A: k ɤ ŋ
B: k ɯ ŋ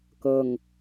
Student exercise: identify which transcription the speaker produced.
A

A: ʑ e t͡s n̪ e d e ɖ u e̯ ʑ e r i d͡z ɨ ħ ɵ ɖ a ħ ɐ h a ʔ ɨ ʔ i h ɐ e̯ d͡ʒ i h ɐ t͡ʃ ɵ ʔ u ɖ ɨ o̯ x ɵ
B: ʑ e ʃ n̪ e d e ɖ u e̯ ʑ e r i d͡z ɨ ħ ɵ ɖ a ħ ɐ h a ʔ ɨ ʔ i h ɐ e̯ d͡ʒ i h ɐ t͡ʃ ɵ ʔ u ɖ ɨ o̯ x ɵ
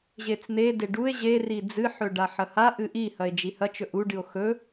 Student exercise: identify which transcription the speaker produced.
A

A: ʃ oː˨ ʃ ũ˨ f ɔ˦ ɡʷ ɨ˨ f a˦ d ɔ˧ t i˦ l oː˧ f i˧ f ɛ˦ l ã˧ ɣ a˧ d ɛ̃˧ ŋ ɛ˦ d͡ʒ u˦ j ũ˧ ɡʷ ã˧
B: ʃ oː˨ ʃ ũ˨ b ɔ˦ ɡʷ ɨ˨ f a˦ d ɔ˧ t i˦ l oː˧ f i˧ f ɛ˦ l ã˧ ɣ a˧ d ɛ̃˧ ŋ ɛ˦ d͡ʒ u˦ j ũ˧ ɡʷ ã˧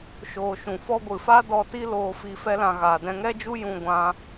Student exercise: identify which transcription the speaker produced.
A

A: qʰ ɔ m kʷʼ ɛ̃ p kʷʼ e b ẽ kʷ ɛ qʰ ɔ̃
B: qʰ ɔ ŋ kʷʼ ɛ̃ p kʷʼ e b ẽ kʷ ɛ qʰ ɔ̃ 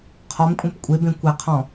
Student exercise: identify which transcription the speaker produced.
A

